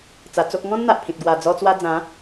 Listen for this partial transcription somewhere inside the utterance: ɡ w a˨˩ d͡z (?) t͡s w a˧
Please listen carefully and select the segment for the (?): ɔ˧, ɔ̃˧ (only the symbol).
ɔ˧